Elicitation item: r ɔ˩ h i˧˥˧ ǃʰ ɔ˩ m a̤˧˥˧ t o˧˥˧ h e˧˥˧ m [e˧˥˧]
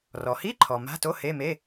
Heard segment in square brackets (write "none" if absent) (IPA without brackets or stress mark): e˧˥˧